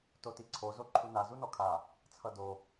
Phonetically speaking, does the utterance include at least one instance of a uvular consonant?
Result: no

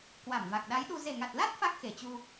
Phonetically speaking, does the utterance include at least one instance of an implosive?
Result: yes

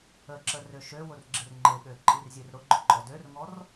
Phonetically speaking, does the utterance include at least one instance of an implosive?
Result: yes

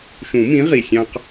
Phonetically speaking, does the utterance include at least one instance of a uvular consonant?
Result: yes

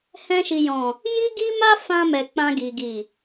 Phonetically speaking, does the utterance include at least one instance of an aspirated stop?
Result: no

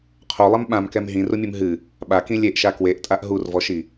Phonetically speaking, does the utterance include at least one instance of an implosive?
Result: yes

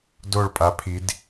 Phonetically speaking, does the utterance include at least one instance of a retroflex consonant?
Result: yes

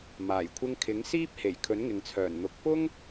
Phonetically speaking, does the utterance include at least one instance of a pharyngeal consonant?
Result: no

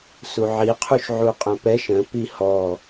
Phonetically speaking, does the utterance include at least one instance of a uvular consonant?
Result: yes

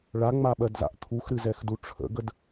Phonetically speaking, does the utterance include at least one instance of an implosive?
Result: yes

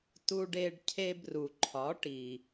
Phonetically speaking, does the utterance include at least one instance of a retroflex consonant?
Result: yes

